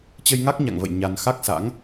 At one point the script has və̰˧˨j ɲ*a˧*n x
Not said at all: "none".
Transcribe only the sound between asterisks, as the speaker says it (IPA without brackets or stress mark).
a˧